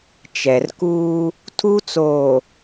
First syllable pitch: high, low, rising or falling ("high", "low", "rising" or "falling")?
low